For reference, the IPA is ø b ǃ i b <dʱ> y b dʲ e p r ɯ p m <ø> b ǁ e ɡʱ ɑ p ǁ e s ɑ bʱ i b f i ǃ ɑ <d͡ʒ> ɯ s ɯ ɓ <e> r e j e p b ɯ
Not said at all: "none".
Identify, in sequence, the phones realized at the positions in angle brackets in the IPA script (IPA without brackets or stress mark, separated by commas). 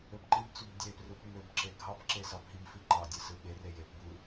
t͡s, ø, dʲ, e